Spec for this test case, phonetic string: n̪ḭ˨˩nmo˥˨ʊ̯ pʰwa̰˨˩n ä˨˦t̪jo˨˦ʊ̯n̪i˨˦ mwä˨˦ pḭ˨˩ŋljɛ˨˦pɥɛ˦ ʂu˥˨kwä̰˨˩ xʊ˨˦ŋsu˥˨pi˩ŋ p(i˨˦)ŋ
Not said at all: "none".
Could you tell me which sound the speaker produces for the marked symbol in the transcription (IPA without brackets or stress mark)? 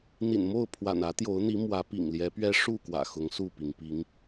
i˨˦